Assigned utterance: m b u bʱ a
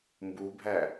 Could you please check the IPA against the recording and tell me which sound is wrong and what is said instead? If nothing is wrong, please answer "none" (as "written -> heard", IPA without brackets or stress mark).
a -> æ